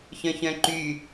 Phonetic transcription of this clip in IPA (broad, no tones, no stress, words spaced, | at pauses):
çœ̃çœ̃ǃy